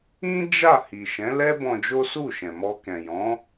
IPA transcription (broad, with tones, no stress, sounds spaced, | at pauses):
ĩ˦ d͡ʒ a˦˨ h i˨ ʃ ɛ̃˨˦ l ɛ˦ b ɔ̃˧ d͡ʒ o˦ s u˦˨ ʃ ɛ̃˨ m ɔ˧ k ɛ̃˨ j ɔ̃˨˦